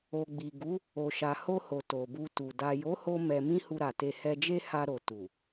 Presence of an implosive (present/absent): absent